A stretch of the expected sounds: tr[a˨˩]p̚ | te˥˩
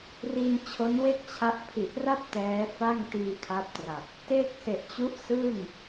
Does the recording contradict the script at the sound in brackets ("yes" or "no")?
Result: no